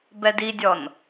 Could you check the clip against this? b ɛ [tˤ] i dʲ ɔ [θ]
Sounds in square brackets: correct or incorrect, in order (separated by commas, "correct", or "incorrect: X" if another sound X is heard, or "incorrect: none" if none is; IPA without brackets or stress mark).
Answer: incorrect: d, incorrect: n